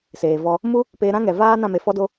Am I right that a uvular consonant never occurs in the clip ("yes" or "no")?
yes